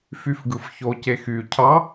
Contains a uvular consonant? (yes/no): no